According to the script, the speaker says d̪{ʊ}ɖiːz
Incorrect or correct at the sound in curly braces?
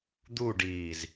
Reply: incorrect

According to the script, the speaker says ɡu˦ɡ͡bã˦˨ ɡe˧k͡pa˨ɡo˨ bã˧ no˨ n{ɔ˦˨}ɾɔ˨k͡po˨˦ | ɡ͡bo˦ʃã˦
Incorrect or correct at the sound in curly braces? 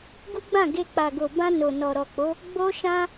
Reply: incorrect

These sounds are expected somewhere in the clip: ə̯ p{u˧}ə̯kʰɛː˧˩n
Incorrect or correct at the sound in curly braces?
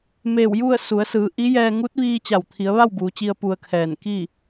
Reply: correct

